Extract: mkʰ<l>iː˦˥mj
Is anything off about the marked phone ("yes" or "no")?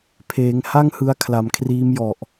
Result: yes